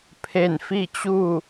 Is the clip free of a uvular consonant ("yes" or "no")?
yes